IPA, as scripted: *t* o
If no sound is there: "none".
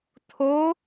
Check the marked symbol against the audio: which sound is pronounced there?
tʰ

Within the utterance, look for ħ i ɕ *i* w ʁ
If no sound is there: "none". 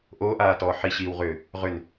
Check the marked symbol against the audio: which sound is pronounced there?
iː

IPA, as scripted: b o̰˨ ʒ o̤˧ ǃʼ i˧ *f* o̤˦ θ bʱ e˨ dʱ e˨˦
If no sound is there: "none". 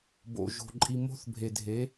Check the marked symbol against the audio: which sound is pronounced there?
m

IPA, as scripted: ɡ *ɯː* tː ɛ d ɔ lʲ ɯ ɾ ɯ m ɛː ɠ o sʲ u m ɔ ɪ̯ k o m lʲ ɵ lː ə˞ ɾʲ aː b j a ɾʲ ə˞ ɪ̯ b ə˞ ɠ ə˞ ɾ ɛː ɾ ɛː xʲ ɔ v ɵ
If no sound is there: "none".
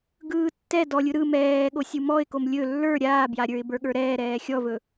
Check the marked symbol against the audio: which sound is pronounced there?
ɯː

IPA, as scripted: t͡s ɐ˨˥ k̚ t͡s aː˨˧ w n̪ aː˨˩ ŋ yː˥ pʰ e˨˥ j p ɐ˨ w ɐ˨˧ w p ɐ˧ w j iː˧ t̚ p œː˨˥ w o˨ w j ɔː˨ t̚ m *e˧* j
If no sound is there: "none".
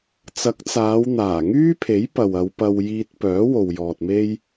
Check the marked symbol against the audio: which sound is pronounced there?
e˧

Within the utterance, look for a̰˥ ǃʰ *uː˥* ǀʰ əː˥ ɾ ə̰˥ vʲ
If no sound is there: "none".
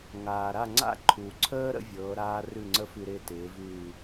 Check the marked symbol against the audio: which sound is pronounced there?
uː˩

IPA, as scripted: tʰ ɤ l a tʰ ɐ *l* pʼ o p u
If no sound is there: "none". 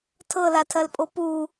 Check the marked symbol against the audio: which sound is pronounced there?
l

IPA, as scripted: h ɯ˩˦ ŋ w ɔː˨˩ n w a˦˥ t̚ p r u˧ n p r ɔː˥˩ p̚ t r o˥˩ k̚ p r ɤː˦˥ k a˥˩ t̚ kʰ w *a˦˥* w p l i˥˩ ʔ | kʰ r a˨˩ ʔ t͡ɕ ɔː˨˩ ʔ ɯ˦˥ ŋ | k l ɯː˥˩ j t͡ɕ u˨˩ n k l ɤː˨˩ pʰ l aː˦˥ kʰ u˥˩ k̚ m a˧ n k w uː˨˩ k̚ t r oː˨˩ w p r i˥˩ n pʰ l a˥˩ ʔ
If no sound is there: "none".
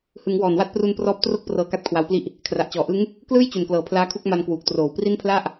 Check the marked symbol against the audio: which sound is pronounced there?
a˦˥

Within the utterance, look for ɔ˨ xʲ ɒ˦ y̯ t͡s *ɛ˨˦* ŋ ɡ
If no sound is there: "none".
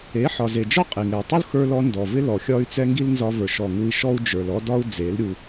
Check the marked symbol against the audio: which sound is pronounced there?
ɛ˦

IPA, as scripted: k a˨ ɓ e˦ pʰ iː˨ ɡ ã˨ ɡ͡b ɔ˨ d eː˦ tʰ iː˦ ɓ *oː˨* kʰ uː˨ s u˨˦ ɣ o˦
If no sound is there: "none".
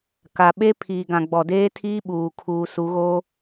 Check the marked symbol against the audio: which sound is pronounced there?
uː˨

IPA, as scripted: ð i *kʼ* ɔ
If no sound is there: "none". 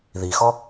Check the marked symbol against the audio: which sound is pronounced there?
x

